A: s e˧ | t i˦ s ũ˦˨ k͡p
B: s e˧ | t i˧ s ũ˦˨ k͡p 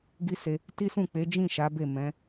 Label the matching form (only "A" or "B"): A